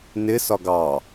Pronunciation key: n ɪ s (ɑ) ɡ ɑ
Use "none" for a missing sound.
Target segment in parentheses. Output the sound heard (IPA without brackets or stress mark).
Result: ɒ